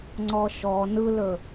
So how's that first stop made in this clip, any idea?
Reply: click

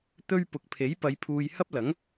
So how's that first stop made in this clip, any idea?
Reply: plain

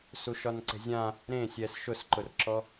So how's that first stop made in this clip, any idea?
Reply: click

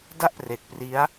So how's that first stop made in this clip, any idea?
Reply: plain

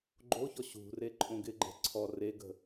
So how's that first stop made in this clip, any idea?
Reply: click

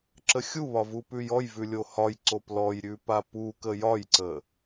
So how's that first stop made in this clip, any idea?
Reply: click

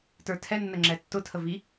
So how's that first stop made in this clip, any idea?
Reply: plain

